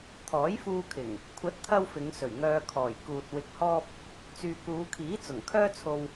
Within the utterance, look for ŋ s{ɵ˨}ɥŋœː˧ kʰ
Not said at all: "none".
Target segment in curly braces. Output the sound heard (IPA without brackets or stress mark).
ɵ˨˩